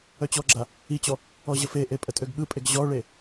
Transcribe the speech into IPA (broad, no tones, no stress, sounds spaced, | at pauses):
œ t͡ɕ ɔ ɡ͡ǁ a | i t͡ɕ ɔ | ɔ ʑ ə f e ʔ e pʼ ə tʼ ø ɡ ɠ ɯ pʼ e ɡ ʑ ɔ ɭ e